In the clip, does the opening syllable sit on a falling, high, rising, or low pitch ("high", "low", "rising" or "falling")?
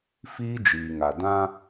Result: high